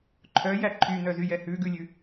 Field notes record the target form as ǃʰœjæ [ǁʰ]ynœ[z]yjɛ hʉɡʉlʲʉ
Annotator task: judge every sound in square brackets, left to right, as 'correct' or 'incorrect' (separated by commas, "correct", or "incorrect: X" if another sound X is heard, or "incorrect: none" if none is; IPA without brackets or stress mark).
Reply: incorrect: ǃʰ, correct